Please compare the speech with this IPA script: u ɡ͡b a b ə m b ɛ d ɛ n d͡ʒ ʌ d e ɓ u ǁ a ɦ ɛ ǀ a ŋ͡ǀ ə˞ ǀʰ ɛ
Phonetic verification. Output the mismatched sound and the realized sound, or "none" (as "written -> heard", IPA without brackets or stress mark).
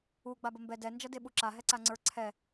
none